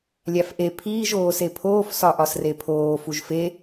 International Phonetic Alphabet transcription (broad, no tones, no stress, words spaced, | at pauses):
lʲæfʔe pʰiːʒ oːsepʰoːf sɒʔɒsrepʰoː fuʒfe